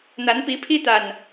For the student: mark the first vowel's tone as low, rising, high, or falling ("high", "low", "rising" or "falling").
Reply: rising